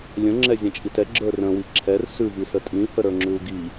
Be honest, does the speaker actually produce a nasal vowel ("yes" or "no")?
yes